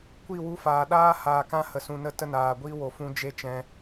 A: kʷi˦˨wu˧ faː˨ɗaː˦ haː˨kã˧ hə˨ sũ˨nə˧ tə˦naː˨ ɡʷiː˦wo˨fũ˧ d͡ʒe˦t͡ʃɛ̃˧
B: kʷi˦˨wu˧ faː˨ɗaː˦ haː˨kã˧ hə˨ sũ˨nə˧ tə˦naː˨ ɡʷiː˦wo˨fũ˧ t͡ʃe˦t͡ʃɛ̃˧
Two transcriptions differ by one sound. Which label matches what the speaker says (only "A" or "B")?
A